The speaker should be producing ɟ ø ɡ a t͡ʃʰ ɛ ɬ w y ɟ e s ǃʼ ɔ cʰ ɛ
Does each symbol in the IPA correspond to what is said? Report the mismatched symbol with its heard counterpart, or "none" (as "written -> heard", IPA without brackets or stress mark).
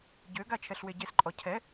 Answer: y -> e